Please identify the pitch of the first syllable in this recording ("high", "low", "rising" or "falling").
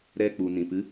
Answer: high